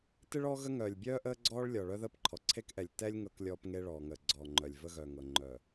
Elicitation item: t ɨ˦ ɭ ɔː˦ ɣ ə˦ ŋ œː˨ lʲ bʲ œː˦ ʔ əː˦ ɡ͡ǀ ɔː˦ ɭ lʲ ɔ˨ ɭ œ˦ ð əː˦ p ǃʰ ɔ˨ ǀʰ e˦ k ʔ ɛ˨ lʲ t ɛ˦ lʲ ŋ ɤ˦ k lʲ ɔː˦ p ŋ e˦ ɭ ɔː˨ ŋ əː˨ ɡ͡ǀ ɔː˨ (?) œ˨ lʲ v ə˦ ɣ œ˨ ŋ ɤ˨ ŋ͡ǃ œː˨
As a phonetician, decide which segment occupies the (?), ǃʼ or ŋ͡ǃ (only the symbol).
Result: ŋ͡ǃ